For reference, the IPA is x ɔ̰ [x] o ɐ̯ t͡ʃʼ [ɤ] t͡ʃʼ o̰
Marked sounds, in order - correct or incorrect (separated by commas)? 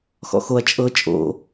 correct, correct